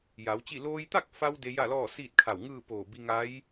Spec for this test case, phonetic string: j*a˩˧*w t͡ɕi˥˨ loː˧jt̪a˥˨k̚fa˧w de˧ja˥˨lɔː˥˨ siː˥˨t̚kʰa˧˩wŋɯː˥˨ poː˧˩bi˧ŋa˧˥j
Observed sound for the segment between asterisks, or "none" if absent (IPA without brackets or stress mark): a˩˧